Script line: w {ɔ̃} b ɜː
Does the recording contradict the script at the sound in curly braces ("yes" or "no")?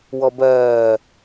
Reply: yes